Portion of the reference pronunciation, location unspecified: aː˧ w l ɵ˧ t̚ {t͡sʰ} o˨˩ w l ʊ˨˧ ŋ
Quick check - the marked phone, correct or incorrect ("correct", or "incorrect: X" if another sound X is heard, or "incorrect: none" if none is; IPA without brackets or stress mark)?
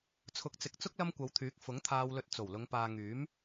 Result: incorrect: t͡s